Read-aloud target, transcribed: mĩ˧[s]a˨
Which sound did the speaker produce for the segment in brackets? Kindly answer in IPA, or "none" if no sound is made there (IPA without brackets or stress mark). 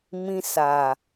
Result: s